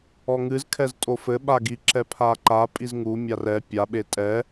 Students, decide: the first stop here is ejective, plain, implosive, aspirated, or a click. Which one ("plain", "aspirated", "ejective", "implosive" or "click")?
aspirated